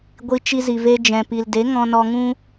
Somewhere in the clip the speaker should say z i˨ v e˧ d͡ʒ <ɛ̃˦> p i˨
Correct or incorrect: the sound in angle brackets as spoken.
incorrect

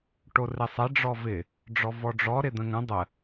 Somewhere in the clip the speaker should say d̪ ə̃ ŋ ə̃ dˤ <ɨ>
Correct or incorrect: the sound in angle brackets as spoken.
incorrect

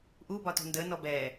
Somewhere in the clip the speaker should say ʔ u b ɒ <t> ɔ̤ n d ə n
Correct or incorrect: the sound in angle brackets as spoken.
correct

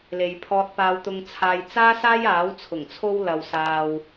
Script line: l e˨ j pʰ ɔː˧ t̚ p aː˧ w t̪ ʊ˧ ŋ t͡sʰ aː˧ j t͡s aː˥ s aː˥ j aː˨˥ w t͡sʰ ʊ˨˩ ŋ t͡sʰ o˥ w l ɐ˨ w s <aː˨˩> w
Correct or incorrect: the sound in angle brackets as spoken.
incorrect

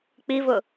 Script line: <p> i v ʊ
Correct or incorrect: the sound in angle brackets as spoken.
incorrect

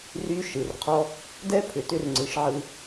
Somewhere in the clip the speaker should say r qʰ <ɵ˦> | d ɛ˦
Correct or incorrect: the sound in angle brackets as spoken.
incorrect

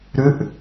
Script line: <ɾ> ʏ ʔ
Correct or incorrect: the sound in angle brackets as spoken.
correct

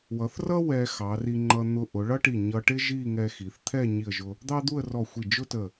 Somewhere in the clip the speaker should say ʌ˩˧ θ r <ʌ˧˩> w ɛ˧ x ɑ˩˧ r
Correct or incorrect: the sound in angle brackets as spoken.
incorrect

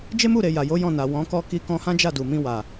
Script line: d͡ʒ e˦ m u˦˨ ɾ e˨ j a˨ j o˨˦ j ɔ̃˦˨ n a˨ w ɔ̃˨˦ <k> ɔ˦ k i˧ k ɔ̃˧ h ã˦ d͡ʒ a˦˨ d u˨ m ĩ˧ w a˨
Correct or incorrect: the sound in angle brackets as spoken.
correct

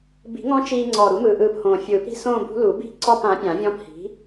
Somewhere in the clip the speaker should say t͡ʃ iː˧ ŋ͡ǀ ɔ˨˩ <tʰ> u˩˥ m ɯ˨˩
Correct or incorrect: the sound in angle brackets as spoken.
incorrect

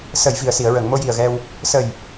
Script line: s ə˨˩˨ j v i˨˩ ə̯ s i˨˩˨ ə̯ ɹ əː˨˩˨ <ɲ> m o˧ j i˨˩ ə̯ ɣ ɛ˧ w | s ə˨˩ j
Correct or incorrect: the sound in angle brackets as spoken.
incorrect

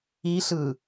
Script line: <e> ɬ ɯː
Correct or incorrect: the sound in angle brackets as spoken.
incorrect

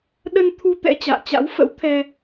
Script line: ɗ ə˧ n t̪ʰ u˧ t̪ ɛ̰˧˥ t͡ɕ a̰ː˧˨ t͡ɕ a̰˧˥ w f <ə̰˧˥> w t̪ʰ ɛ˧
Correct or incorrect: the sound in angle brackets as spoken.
correct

